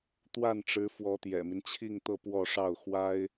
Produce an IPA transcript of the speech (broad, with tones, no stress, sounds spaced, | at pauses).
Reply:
t̪ w a˥˩ n ʈ͡ʂ ɻ̩˧˥ f w ɔ˧˥ t̪ j ɛ̰˨˩ m i˦ n t͡ɕʰ i˥˧ ŋ t̪ ɤ˥˧ p w ɔ˥˧ ʂ ɑ˥˩ ʊ̯ x w a˥ ɪ̯